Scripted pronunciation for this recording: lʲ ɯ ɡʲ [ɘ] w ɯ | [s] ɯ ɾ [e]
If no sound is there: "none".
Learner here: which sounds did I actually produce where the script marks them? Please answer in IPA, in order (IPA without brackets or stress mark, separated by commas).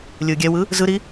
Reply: ɛ, z, i